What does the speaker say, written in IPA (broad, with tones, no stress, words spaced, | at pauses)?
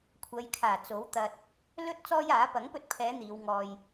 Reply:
kʷʰɐ˨˧jkʰaː˨˩ t͡so˨˥wt̪ɐ˧t̚ | lɵ˥t̚ t͡sɔː˥jaː˨˥ pɐ˨˥ŋpɵ˧t̚pʰɛː˨˧ n̪iː˨˧wŋɔː˧j